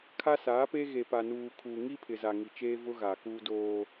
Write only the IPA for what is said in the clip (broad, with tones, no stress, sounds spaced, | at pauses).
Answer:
kʰ a˦ s aː˨˦ p e˦ ɣ e˨ p a˨ n uː˨ kʰ uː˨ ŋ i˦ pʰ ɪ˨ z a˨ ŋ i˨ t͡ʃ eː˦ v ʊ˦ ɣ aː˨ k uː˦ d oː˦